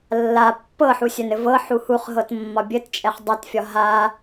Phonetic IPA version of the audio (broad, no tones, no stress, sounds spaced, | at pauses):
lː a pː ɤ ħ u sʲ œ n ɘ v ɤ ħ u h u χ ɦ ɤ t mː ɒ bʲ ɘ t t͡ʃʼ ɛ χ dˤ a t fʲ ɒ ɦ a